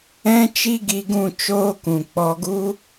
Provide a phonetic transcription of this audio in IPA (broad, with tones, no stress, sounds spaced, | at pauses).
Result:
ɛ̃˦ t͡ʃ i˦ ɡ i˧ ɡ ũ˦˨ t͡ʃ oː˦ k ũ˨ k͡p ɔ˧ ɡ u˦